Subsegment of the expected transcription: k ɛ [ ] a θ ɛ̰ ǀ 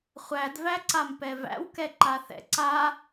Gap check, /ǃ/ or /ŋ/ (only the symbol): ǃ